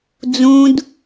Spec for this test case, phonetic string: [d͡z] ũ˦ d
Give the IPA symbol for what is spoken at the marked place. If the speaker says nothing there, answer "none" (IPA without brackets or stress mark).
d͡z